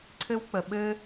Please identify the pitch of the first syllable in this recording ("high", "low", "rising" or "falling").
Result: high